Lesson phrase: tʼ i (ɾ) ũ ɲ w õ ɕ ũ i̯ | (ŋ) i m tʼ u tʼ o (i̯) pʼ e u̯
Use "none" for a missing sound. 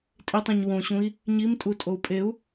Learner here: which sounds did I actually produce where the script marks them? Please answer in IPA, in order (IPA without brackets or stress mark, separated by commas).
tˤ, ɲ, u̯